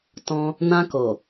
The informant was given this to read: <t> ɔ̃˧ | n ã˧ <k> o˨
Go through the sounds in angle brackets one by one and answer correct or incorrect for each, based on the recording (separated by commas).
correct, correct